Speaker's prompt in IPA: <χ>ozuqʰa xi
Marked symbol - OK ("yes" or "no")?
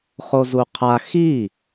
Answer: yes